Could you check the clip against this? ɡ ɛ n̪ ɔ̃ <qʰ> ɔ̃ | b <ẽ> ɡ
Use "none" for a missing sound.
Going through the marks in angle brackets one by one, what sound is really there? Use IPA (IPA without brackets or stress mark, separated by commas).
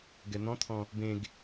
t̪ʰ, ẽ